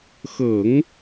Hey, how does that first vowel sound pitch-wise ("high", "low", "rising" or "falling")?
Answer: low